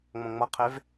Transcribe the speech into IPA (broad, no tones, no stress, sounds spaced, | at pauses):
ŋ͡m õ ŋ͡m ʌ qʰ e v